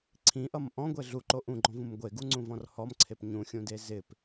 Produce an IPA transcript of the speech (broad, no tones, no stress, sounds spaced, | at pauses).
ǀʰ ĩ ʔ ʌ m ʔ ɔ̃ ɡʷ e ɮ u ǃ o ʔ ũ ɡ͡ǃ ɔ̃ v ũ m ɡʷ e ɡ u ŋ͡ǀ ũ v ɔ̃ r h ɔ m ǀʰ e p ɲ ũ xʲ ũ d e z ɪ p